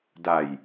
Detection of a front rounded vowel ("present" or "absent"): absent